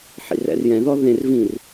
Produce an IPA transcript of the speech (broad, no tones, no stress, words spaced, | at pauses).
ħḭrɛ̰rjɛ̃ðɔ ðẽr vĩr